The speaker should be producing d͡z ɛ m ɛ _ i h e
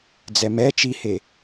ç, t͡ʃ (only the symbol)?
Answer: t͡ʃ